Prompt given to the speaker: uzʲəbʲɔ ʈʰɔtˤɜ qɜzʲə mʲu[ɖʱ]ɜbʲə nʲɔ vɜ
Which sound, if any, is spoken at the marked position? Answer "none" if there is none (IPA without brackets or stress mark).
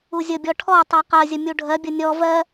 ɖʱ